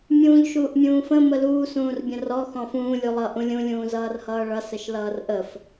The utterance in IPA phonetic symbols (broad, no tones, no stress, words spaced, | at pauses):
mʲũːʎʃuːʔmʲũːfə̃ məluː sũːrbʲə̃rɔ xɔ̃fũː lʲulˠʌ ʔũlʲũ lʲũːzʌːrhʌːɭʌ səʃlʌːrʔəf